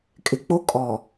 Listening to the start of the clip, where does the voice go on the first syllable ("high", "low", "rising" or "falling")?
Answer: low